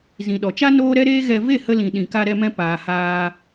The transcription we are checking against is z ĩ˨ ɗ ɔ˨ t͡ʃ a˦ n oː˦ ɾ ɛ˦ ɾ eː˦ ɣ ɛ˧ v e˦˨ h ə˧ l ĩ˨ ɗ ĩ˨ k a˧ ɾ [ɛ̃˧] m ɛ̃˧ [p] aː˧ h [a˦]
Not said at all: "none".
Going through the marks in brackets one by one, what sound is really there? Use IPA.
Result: ɛ˧, p, aː˦

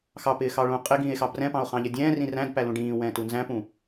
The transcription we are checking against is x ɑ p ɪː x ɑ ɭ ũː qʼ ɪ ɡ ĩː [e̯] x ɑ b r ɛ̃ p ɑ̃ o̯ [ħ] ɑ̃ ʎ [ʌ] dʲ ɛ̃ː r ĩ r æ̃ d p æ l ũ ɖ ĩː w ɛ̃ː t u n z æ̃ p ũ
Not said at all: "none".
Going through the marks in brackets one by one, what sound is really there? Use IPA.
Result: e̯, χ, ʌ

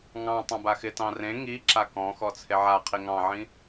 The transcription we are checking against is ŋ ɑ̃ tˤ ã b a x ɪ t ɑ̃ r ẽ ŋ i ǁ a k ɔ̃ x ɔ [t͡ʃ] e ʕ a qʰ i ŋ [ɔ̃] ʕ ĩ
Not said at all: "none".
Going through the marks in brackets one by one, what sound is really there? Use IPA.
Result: t͡sʰ, ɑ̃

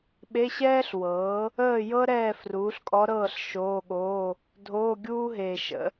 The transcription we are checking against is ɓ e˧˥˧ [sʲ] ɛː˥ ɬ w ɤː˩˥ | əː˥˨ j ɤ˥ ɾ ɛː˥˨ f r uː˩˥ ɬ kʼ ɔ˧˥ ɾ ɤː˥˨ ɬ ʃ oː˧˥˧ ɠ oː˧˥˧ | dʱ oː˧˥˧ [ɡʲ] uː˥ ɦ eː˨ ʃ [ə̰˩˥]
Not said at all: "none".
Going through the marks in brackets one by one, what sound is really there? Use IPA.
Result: ɕ, ɡʲ, ə̰˩˥

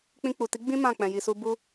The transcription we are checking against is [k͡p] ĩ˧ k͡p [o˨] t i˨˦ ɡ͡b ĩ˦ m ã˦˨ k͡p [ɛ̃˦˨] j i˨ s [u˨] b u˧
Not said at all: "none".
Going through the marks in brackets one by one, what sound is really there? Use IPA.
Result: k͡p, u˨, ɛ̃˨, u˧

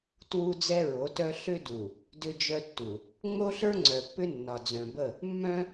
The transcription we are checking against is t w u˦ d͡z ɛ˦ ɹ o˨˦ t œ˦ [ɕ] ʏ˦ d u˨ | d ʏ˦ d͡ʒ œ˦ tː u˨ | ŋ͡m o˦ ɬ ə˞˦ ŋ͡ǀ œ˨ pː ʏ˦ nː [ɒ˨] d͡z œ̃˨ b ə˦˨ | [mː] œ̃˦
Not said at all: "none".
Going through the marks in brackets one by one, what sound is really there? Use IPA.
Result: ɬ, ɒ˨, mː

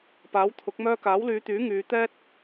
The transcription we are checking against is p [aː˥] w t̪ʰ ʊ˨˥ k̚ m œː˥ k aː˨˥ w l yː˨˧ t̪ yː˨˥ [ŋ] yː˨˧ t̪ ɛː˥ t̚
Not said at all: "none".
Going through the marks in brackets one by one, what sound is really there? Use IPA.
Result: aː˨˥, ŋ

